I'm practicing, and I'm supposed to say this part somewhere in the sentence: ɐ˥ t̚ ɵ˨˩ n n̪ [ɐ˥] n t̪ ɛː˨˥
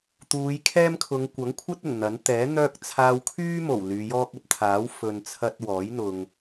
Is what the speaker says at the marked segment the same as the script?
no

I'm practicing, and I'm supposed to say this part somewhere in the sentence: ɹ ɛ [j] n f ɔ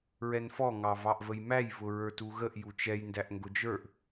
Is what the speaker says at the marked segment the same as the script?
no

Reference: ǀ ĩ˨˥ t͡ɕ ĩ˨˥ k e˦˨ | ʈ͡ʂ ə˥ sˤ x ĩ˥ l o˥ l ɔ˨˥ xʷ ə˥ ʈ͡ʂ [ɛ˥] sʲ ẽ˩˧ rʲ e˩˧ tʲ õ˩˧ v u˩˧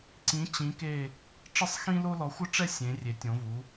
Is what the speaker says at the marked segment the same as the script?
yes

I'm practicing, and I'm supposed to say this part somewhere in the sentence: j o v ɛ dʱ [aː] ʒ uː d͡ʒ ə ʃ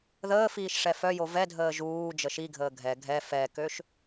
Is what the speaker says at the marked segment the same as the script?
no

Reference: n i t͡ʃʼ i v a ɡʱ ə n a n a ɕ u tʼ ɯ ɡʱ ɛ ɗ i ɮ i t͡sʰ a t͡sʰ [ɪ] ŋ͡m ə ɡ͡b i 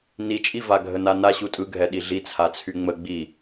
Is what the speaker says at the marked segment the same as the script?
no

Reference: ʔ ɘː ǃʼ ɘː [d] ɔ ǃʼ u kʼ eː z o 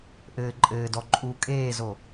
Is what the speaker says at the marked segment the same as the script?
yes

